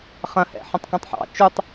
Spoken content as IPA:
χɐ̃hɛ̰ ħɛ̃tˤkũtˤħɑ̰ t͡ʃutˤ

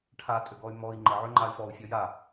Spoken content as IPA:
ʈʰatʼøɡɔy̯ mɔi̯ ŋ͡ǃəʕø ŋ͡ǃay̯fɔu̯ fʲɔja

